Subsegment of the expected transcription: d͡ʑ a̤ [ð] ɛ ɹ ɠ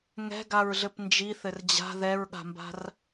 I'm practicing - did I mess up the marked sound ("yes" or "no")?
no